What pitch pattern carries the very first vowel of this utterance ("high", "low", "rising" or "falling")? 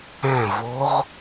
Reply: falling